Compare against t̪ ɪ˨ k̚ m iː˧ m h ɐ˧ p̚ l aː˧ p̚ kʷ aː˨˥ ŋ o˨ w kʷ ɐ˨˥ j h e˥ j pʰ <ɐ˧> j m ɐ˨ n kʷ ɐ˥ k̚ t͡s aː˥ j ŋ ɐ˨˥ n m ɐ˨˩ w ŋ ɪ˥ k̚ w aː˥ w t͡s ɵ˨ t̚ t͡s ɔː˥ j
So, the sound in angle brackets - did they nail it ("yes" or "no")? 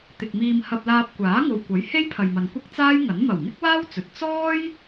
no